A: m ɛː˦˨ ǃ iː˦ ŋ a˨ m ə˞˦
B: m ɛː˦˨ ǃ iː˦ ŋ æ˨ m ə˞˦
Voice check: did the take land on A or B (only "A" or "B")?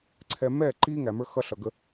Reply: B